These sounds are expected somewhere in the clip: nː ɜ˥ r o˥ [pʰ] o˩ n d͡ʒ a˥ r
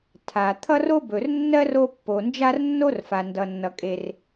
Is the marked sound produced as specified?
no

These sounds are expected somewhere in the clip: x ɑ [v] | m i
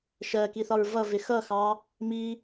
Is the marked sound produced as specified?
no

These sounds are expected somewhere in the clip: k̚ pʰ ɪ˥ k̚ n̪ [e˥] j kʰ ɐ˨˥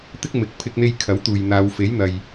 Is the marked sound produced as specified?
yes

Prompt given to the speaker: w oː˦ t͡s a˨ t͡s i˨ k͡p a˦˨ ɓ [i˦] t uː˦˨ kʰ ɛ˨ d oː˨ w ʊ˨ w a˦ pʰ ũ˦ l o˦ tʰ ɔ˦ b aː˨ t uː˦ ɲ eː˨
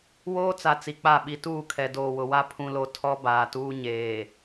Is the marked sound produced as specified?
no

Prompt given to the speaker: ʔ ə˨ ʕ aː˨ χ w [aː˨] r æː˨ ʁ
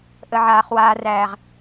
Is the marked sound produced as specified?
yes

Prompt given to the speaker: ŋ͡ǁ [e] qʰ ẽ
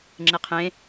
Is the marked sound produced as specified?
yes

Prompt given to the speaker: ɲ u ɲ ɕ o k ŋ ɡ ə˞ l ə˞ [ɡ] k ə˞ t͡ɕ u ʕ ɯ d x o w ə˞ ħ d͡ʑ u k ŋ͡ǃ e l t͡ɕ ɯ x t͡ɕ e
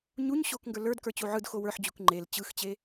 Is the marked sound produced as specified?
no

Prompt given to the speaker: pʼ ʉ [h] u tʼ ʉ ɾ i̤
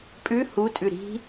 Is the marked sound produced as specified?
yes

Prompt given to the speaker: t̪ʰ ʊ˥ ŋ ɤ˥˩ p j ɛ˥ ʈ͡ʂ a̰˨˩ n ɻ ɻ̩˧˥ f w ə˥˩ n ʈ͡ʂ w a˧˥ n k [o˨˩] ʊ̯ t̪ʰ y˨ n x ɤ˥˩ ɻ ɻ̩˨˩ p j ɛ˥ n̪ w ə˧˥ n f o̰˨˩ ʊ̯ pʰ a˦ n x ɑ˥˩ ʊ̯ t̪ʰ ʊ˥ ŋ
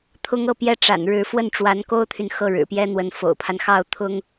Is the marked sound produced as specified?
no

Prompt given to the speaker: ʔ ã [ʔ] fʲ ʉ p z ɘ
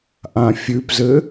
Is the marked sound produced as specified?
no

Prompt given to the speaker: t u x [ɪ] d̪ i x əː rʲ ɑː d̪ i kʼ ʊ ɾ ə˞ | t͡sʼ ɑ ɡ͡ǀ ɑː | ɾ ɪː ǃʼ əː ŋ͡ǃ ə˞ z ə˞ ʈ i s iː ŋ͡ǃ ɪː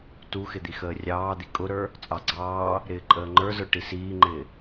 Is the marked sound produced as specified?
yes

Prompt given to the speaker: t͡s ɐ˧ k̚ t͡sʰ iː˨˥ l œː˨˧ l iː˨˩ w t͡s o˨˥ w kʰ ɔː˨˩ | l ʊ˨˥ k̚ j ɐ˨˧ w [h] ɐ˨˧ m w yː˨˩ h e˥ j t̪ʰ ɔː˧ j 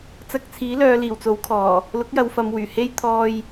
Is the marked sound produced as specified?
no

